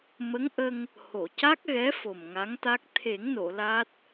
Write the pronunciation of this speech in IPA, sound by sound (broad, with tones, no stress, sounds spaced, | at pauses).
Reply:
m ə˧˥ ŋ ʔ ə˧ ŋ | h o˨˩˨ c a˦˥ k̚ ɣ ɛ˧˥ f o˨˩ m ŋ a˧˥ ŋ t̪ a˦˥ k̚ t̪ʰ e˨˩˦ ŋ n o˨˩˨ l a˦˥ t̚